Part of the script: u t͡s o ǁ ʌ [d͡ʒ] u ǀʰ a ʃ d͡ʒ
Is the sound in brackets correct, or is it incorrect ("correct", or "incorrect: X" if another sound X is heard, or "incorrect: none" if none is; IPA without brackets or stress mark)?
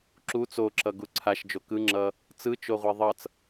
incorrect: ɡ